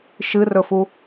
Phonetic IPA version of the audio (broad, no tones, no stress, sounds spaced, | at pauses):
ʃ ɨ r ɵ f u